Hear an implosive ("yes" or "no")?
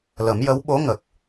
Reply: yes